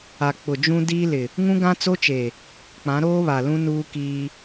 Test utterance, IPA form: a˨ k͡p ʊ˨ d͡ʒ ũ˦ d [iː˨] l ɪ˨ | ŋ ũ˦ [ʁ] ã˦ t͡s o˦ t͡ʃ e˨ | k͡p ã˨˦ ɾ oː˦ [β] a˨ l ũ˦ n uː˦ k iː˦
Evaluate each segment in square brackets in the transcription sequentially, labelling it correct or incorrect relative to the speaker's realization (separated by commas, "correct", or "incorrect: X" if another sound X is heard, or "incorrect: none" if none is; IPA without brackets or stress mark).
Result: incorrect: iː˦, incorrect: ɡ, correct